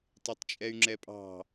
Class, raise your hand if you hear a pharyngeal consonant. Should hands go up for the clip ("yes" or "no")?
no